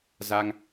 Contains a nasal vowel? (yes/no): no